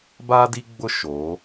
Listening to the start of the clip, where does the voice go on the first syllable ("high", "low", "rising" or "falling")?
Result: high